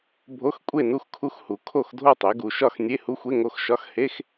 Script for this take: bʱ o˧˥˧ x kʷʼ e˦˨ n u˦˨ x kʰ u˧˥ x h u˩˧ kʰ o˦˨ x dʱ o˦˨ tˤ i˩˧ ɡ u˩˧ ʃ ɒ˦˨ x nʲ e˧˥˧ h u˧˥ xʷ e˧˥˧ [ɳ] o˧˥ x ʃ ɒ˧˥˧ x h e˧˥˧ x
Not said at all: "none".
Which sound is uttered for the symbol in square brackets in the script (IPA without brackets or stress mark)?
ŋ